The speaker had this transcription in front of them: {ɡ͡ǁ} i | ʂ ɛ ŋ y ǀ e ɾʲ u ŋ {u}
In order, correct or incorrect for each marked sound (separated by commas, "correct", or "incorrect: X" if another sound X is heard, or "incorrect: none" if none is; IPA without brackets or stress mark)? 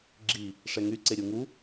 correct, correct